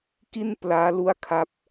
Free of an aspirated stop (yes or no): no